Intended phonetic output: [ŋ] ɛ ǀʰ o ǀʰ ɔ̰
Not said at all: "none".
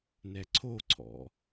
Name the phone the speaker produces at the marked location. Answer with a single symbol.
n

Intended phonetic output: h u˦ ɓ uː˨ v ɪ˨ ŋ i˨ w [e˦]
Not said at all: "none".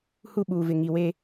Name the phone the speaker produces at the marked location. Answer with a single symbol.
e˦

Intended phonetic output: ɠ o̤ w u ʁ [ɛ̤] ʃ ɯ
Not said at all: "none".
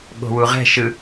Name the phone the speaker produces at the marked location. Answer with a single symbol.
ɛ̤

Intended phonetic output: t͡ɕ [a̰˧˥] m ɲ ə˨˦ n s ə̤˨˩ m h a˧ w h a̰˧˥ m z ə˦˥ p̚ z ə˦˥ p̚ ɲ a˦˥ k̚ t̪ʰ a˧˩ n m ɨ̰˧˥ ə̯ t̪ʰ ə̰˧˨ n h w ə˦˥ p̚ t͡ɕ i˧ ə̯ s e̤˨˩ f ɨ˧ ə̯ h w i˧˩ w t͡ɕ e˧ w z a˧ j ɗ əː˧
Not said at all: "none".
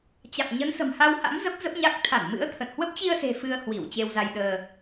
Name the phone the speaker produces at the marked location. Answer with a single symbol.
a̰˧˨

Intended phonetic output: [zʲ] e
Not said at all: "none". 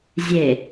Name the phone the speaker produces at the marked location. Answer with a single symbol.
zʲ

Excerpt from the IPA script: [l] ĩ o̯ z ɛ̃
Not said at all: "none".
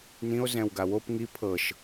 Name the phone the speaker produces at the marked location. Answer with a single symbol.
n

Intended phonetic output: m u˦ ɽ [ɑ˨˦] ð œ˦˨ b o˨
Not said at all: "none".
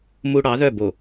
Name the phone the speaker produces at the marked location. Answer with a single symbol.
ɑ˨˦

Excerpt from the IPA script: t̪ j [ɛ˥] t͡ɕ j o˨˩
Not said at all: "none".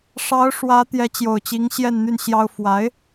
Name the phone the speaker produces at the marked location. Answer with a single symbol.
ɛ˧˥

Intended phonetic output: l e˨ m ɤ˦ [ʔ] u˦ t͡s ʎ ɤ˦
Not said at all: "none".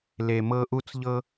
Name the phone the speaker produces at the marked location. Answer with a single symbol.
ʔ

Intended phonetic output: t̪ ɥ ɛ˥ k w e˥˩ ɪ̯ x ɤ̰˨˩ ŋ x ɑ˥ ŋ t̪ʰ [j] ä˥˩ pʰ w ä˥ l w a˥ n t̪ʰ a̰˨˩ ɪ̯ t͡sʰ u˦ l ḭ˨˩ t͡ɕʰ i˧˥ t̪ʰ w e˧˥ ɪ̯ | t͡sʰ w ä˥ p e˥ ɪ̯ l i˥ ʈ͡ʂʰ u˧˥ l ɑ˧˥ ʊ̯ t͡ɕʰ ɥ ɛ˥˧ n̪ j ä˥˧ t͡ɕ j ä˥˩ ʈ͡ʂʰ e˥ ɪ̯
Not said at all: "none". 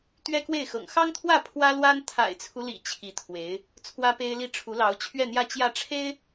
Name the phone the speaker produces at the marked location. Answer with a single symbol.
w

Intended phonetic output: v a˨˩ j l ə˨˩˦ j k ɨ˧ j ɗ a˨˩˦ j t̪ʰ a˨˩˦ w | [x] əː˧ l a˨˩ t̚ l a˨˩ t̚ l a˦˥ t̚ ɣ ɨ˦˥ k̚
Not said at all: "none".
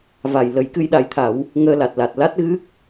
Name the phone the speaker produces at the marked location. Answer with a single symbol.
ŋ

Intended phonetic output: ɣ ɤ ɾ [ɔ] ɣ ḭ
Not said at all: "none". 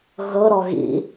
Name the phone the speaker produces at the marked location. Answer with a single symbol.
ɔ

